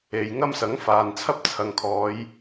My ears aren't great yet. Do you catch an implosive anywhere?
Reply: no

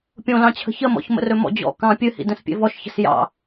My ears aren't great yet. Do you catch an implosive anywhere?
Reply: no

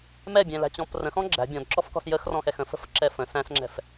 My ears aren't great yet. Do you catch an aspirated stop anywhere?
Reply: no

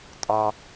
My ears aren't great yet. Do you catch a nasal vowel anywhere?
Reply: no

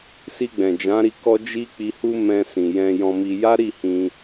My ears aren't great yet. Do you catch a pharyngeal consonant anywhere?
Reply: no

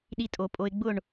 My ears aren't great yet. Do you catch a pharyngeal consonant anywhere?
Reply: no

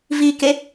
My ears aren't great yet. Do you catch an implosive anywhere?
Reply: no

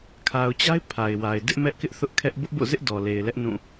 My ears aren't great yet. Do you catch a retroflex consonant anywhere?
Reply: no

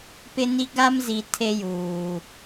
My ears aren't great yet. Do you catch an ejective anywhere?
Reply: no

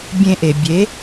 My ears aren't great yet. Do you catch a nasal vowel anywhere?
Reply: yes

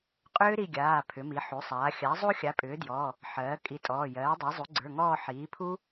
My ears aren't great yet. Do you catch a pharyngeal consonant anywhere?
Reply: yes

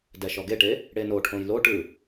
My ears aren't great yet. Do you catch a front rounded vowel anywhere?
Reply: no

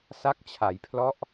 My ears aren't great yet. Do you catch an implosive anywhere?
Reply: no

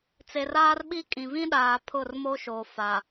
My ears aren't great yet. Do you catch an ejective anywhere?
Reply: yes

